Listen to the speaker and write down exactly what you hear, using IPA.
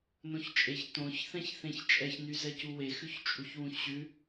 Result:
n õ ç t͡ʃʼ e ç t õ ç θ ɛ̃ ç θ ẽ ç t͡ʃʼ ɛ ç n y z ɛ c u w e x ʉ ç t͡ʃʼ u ç w ũ ç ɕ ʉ

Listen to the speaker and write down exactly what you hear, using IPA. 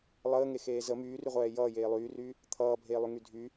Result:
lˠ əː ŋ e x eː z ə m yː r y ʁʷ ɛː j ʌː j eː lˠ yː r yː | t̪ʰ ʌː bʱ eː lˠ y ŋ y dʱ y

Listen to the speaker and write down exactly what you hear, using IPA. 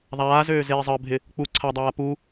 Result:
ðˤ aː z øː z eː zˤ əː bʱ ɪ | k͡p u ǀʰ a dˤ aː p u

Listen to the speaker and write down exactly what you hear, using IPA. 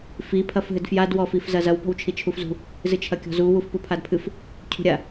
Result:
f i pʰ ɐ f ɦ ɨ d f j a d w ɔ f i f z ɐ z ɐ w p ɔ̤ w t͡ʃʰ i t͡ʃʰ u f z ṳ | z ɨ t͡ʃʰ ɐ kʲ ɔ̤ z u w u f p u pʰ a d pʰ ɨ f | cʰ ṳ ɾʲ a

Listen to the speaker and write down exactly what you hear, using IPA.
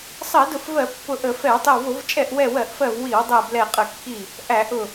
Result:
sˤ ɜ˧˩˧ d ʊ˧˩˧ f v ɜ˧˩˧ pː ʊ˧˩ ʔ ə˧˩˧ f ɛ˧˩˧ w tˤ ɪ˧˩ w v ʊ˧˩˧ v t͡ʃʼ ɛ˧˩ ʔ w ɛ˧˩ w ɜ˧˩˧ ʔ f ɜ˧˩ v w i˧˩˧ w dˤ ɜ˧˩ b l ɛ˧˩ qʼ ə˧˩˧ kː i˧˩ | ʔ æ˧˩˧ ʔ ʊ˧˩

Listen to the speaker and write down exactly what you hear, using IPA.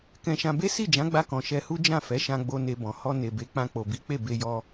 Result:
k ɛ̃˧ ʃ ã˧ b e˦ s i˦˨ d͡ʒ ã˨˦ ɡ͡b a˧ k ɔ̃˨ ʃ ɛ˧ h u˦ d͡ʒ ã˦˨ f ɛ˨˦ ʃ ã˧ ɡ͡b o˧ n e˧ b ɔ̃˨ h ɔ˧ n e˨ b e˨˦ k͡p ã˧ k͡p o˨ b i˨˦ k͡p e˦˨ b e˧ j ɔ˧

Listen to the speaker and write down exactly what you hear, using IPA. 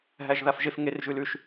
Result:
ɦ æ ʒ ð a f ʒ e f ŋ e r ʒ ʉ l ʉ ʃ

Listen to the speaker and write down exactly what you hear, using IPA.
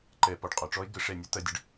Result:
ǃ ɛ˧˩˧ p ɔ˧˩ ɖ qʼ ɒ˧˩˧ ʈ͡ʂ ɔ˦˥ e̯ ɡ ə˧˩˧ ʂ ɛ˧˩ nʲ ɐ˦˥ t ɐ˧ dʲ ə˧ ɖ

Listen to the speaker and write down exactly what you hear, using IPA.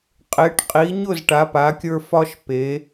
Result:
qʼ e˨˦ ʈ qʼ i˨˦ ɲ ʊ˥˨ z ʈ a˨˦ p a˨˦ kʲ ə˞˦ f ɒ˦ ʃ p e˨˦

